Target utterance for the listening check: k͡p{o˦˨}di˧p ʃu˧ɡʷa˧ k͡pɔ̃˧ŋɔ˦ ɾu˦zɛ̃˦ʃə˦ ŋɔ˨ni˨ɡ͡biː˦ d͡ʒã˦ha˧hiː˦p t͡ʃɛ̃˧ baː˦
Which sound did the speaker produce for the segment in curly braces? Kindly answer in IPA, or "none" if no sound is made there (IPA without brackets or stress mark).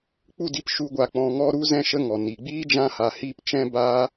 u˦˨